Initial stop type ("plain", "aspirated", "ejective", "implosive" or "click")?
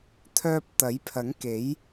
aspirated